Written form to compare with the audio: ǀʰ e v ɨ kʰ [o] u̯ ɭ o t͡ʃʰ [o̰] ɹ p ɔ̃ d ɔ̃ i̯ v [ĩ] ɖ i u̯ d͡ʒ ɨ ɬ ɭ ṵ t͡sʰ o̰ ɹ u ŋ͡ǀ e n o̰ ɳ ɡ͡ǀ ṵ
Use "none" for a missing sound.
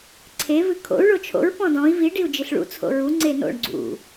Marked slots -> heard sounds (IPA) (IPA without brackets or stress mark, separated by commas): o̰, o̰, i